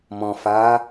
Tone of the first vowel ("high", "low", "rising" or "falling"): low